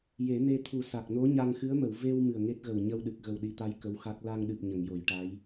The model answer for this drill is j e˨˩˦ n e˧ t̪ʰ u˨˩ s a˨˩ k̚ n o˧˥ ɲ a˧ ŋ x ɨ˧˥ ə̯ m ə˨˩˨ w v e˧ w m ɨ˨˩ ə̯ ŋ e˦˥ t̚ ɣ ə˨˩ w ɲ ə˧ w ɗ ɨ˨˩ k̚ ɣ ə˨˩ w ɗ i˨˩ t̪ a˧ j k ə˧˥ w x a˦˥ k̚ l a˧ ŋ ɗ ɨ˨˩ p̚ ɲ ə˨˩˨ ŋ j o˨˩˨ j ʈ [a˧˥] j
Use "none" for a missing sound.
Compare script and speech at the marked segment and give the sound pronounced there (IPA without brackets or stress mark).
a˧˥